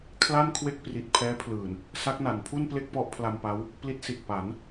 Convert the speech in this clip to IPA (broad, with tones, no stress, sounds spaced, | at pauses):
kʰ l a˥˩ n kʰ w e˥˩ k̚ p r i˨˩ t̚ pʰ ɛː˦˥ pʰ l ɯː˨˩ n | s a˦˥ k̚ n a˩˦ n pʰ u˥˩ n p l e˥˩ k̚ p ɔ˦˥ ʔ pʰ l a˧ m p a˦˥ w | p l i˦˥ t̚ s i˨˩ t̚ p a˩˦ n